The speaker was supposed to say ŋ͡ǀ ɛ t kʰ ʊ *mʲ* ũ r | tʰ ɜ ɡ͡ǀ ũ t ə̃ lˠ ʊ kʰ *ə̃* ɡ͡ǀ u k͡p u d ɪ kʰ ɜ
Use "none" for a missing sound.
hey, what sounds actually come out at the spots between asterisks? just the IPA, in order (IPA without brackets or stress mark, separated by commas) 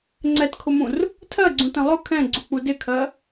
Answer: m, ɛ̃